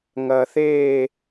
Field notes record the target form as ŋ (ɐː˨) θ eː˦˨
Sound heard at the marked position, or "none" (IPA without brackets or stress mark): ɐː˨